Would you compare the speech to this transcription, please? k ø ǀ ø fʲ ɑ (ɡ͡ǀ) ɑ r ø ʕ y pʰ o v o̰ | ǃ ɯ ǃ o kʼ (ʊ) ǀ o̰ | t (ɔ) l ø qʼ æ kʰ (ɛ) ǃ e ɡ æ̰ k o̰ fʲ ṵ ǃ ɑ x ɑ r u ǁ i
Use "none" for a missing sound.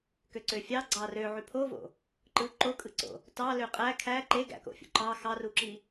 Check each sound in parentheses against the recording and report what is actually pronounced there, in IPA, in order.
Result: ɡ͡ǀ, ɯ, ɑ, æ

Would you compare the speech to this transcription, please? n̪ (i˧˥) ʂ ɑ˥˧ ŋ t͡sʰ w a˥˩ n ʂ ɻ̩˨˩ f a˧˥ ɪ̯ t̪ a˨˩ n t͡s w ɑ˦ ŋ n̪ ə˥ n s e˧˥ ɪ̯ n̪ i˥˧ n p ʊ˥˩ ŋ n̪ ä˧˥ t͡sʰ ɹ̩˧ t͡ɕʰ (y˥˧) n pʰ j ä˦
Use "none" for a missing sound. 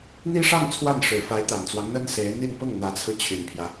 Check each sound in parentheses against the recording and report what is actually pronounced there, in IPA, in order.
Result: i˥, y˨˩

